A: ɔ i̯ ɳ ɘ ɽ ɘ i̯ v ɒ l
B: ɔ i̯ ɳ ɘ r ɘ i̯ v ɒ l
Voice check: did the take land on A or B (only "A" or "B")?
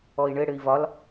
A